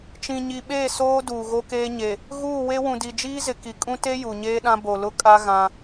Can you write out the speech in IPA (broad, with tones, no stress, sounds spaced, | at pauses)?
t͡ʃ ĩ˨ ɲ i˨ ɓ eː˦˨ s oː˦ d uː˨ ɣ o˦ k eː˦ ɲ e˨ | ɣ uː˦˨ w e˦ w ũ˨ d i˨ d͡ʒ iː˦ z ɪ˨ k i˨ kʼ ũ˦ t e˦ j u˨ ɲ eː˦ ɗ ã˦ b o˨ l ʊ˦ kʼ a˦ ɣ ã˦